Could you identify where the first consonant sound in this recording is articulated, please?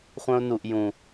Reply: uvular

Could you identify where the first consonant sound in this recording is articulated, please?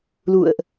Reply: alveolar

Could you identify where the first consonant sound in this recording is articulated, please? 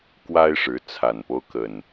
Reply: velar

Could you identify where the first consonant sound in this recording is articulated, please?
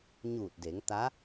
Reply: palatal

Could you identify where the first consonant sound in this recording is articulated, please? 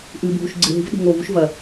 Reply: glottal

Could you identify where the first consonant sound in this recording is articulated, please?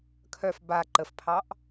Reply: velar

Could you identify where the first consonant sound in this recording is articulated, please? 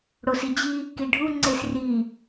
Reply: retroflex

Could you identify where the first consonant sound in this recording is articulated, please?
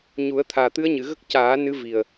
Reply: palatal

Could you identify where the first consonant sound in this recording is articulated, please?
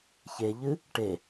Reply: palatal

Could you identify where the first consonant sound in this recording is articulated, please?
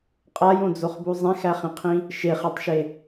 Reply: uvular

